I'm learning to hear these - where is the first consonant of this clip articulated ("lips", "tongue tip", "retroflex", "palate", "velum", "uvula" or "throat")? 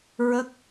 tongue tip